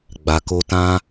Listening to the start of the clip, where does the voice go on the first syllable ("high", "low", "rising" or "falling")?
low